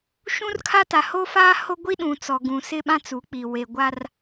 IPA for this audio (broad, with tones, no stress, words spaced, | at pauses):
ʃũ˦rkʰa˦ta˨ ho˦faː˦ho˦ ɡʷi˦ ɗũ˨t͡sɔ˨ɡũ˨ sɪ˦ɓã˦t͡su˨˦k͡pi˨ we˨ɡʷa˦r